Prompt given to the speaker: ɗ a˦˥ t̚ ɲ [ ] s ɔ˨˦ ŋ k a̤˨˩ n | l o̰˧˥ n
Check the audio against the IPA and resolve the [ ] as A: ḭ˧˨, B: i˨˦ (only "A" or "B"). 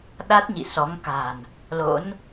A